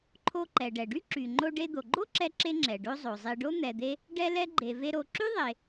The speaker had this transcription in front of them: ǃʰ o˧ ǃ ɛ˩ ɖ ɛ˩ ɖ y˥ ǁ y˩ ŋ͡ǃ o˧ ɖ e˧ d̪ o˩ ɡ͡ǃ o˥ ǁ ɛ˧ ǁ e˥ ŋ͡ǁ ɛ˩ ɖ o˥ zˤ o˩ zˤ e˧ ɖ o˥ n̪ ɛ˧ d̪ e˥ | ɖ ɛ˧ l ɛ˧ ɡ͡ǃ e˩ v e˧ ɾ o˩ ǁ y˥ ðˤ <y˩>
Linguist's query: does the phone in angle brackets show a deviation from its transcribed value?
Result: yes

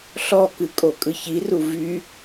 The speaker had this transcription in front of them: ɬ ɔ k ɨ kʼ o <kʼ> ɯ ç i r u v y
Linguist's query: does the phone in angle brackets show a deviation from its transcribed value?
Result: no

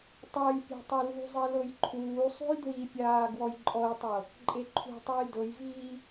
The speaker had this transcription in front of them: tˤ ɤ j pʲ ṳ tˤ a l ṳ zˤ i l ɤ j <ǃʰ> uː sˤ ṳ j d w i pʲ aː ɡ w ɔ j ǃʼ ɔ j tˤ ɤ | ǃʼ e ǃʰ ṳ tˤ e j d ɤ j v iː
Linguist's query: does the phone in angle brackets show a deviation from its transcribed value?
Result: no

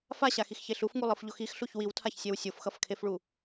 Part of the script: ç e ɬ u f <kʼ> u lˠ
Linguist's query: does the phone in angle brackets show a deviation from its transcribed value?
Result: yes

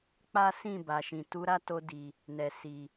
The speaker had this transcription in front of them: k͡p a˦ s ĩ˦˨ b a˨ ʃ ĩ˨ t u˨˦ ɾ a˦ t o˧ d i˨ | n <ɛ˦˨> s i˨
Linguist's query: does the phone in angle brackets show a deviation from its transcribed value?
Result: yes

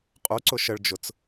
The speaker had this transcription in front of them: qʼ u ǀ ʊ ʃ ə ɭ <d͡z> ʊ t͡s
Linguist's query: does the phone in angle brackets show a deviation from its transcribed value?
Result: yes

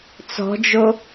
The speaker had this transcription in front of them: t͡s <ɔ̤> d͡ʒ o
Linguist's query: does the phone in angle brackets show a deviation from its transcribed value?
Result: no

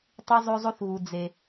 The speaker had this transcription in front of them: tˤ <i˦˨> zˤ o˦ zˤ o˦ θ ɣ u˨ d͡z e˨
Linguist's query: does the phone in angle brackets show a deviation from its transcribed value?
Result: yes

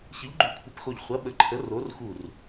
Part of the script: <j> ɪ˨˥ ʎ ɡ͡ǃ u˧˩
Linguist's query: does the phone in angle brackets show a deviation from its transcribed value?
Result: yes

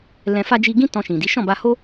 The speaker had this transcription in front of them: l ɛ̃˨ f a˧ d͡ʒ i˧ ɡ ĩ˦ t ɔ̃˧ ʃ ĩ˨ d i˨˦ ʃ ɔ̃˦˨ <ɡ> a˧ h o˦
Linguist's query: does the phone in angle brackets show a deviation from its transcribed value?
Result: yes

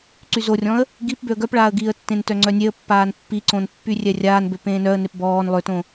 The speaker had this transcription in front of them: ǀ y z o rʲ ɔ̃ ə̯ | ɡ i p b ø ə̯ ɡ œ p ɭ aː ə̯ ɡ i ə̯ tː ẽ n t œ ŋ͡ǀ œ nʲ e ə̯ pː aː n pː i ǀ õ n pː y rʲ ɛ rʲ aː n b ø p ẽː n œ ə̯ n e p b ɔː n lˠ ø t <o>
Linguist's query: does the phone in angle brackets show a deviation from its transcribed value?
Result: yes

